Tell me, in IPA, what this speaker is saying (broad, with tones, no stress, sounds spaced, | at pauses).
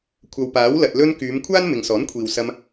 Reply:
kʷʰ ɐ˨ w p aː˨˥ w l ɐ˨ t̚ l ɵ˧ n k yː˨˧ m kʷʰ aː˥ n m ɪ˨ ŋ s ɔː˨˥ n kʷʰ iː˨ w s ɐ˧ m